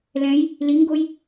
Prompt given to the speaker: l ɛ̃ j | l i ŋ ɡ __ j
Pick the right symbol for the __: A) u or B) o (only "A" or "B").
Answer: B